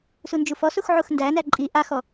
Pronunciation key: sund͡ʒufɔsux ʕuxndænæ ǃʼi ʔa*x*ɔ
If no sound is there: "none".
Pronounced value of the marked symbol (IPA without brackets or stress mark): x